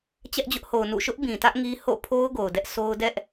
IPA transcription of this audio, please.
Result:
t͡ɕ ɛ˦ ʔ d͡ʑ ʊ˦ ʔ h o˨ ʊ̯ n ṵ˦˨ ʃ ʊ˦ ʔ b ĩ˨ t ä˦ ʔ ŋ i˦ h o̰˦˨ pʰ o˦ ʊ̯ ɡ o˨ ʊ̯ d ɛ˦ ʔ s o˦ ʊ̯ d ɛ˦ ʔ

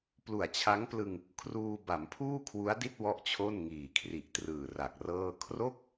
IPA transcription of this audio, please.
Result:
p l u˨˩ a̯ t͡ɕʰ a˦˥ ŋ p l ɯ˧ ŋ | kʰ r uː˧ b a˩˦ m pʰ uː˥˩ kʰ w u˦˥ a̯ d i˥˩ t̚ w ɔ˥˩ ʔ t͡ɕʰ o˥˩ n ŋ iː˨˩ kʰ r i˨˩ ʔ t r ɯː˨˩ r a˨˩ k̚ r ɤː˥˩ kʰ r o˥˩ k̚

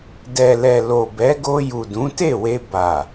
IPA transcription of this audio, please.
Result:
d ɛ˨ l ɛ˨ l o˨ b ɛ˨˦ ɡ o˧ j u˨ d ũ˨˦ t e˦˨ w e˧ b a˨

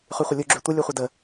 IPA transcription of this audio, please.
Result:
χ y χʷ ə lʲ u ɡ͡ǁ y tʷ ə lʲ u χʷ ə d ə

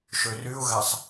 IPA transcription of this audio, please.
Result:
ʃ ø r y ʊ̯ ɣ æ sˤ

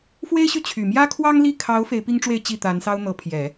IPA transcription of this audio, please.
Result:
f w e˥ ɪ̯ ɕ y˥˩ t͡ɕʰ y˨˩ m j ä˥ kʰ w ɑ˥ ŋ l i˥˩ kʰ ɑ˧˥ ʊ̯ f e˧˥ ɪ̯ p i˥ ŋ ʈ͡ʂ w e˥˧ ɪ̯ t͡ɕ i˥˩ t̪ a˧˥ n s ɑ˥ ʊ̯ n̪ ɤ˧˥ pʰ j ɛ˨˩˦

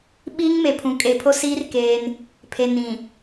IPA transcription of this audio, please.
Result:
ɓ iː˦ ŋ m e˨ pʰ ũ˨ kʼ e˨ pʰ o˦ s iː˦ r k eː˦ n | pʰ e˨ n ĩ˨

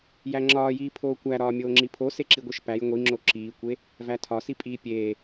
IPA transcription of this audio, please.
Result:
j æ ŋ͡ǁ ɒː j iː pʰ oː kʷ æ ɾ ɒː mʲ oː ŋ͡ǁ i pʰ o s e ǁ i ɡʷ e ʃ p æ j ŋʷ i ŋ͡ǁ o ǁ iː kʷ e | v æ tʰ ɒ s i pʼ iː pʲ eː

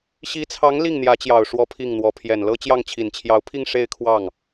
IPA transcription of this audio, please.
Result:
ɕ i˧˥ t͡sʰ ɑ˧˥ ŋ l i˥˩ ŋ n̪ j ä˧˥ t͡ɕ j ɑ˨˩ ʊ̯ ʂ w ɔ˥ pʰ i˥˩ ŋ n̪ w ɔ˧˥ pʰ j ɛ˨˩ n l ɤ˥ t͡ɕ j ɑ˥˩ ŋ t͡ɕʰ i˨˩ n t͡ɕʰ j ɑ˧˥ ʊ̯ pʰ i˥˧ ŋ ʂ e˥˧ ɪ̯ kʰ w ɑ˥˩ ŋ

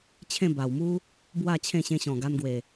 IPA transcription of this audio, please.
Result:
t͡ɕʰ ẽ˥˧ b a˨˩ w m u˦ | b w a˥˧ t͡ɕʰ ẽ˥˧ ɕ ẽ˧ ɕ ɔ̃˨˩ ɡ a˧ n ɡ w e˨˩

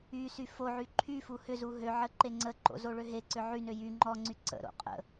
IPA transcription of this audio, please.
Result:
y s y f o ʕ y ǃʰ y f u h ʏ z u ɦ ø ʕ ə ǃ e ŋ͡ǀ ə ǃ o̰ z o ɭ ø ɦ e ǀ ʏ ʕ y n ø j y ŋ͡ǃ ɔ ŋ͡ǀ y ǀ ə̰ ɾ o̰ qʼ ə̰

